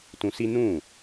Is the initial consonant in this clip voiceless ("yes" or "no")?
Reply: yes